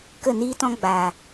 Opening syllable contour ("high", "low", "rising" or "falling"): falling